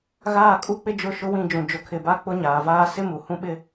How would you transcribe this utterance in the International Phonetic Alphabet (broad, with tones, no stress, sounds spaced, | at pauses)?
ɣ aː˦˨ kʼ u˦ k͡p ɪ˦ d͡ʒ ʊ˦˨ ʃ ʊ˦ w ĩ˦˨ d͡ʒ ũ˨ d͡ʒ ʊ˨ kʰ ɪ˨ b a˦ k͡p ʊ˦ ɲ aː˨ v aː˦ s ɪ˦ m u˨ h ũ˦ ɓ ɪ˦